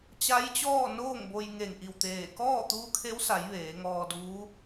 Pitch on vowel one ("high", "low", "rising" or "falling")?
rising